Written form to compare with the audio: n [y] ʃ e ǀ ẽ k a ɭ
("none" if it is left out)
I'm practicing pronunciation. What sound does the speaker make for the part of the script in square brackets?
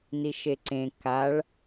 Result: i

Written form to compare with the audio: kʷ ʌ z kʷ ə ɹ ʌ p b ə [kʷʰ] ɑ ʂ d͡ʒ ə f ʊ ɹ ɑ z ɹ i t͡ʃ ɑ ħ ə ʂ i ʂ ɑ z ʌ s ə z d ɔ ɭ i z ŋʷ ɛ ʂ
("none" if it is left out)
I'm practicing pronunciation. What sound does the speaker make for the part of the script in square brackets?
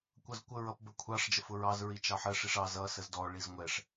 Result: kʷʰ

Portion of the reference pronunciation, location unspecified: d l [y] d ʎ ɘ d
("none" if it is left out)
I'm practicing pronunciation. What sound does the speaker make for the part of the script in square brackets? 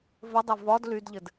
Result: y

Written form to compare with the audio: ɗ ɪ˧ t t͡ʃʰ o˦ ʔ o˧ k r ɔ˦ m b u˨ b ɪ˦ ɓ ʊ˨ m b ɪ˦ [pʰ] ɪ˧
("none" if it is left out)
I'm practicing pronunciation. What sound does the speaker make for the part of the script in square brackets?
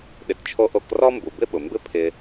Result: pʰ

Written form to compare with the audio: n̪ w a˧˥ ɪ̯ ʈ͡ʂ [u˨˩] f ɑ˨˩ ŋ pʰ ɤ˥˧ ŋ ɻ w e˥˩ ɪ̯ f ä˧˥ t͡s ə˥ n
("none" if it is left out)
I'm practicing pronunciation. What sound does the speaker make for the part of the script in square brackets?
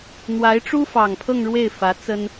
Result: u˥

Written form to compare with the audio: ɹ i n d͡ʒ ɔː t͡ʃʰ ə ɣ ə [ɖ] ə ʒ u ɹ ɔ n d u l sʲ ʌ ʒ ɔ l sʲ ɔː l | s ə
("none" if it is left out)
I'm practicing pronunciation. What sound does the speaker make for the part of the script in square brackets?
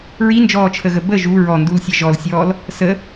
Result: b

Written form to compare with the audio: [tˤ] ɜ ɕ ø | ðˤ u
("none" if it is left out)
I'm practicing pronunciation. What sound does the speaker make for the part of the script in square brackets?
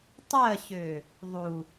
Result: tˤ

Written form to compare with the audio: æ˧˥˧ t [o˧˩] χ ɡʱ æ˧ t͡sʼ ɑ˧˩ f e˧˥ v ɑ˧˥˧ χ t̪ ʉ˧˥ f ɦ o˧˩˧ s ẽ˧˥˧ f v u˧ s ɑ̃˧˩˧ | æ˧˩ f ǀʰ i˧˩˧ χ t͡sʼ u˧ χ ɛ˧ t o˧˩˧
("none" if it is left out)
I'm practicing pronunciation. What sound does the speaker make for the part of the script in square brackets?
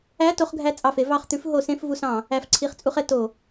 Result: o˧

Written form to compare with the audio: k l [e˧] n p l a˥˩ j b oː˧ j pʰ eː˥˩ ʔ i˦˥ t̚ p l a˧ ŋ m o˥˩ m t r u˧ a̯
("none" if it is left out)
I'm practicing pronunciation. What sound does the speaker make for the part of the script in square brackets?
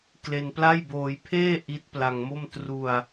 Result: e˧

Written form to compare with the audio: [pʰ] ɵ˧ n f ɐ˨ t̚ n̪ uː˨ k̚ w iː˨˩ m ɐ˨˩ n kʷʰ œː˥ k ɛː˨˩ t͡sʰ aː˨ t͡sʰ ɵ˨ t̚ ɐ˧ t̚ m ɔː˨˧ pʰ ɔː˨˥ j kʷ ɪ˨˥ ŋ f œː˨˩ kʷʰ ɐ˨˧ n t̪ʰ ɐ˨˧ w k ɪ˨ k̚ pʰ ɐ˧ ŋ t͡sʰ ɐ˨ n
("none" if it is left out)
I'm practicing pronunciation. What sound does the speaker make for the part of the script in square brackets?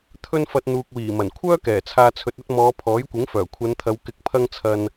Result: t̪ʰ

